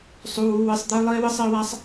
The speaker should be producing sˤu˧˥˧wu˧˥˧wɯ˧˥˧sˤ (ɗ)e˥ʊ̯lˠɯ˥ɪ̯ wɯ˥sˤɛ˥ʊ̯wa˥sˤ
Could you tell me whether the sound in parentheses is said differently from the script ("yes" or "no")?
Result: yes